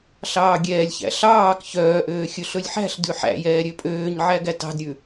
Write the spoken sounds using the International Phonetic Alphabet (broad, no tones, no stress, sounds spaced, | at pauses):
ɬ ɑː ɡʲ ɛː lʲ ç æ̰ ɬ ɑː k ç œː ʔ øː xʲ ɵ ɬ ɵ lʲ ħ æ̤ ɬ d ʉ ħ æ̰ j ɛː ɾʲ ø pʼ øː ɲ ʕ æ ɡ æ t ɑ̤ d ɾʲ ʉ